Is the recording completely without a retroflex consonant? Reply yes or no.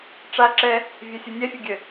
no